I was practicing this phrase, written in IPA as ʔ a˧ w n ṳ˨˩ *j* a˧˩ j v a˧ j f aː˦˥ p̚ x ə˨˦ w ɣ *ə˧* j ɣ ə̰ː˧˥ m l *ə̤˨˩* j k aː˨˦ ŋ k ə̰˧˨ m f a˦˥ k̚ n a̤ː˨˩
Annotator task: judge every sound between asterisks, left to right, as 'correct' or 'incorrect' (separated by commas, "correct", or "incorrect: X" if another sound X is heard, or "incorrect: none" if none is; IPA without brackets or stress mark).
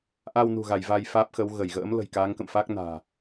incorrect: ɣ, incorrect: ə˧˩, correct